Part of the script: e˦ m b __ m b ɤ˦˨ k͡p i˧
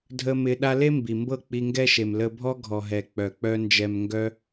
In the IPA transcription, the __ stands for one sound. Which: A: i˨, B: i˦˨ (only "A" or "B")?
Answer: A